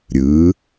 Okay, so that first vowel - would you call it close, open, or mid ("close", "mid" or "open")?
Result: close